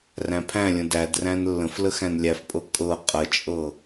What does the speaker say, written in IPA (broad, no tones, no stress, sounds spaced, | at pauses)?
r æ̃ pʰ æ̃ lʲ ə̃ d æ d r æ̃ n lː ə̃ f l ə x æ̃ n lʲ æ f pʼ ɤ kʼ ɤ qʼ ə t͡ʃʼ ɤ